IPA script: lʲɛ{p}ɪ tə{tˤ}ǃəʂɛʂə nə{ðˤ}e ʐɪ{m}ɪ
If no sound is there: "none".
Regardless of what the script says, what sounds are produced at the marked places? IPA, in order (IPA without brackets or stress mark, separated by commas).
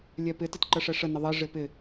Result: p, t, ðˤ, p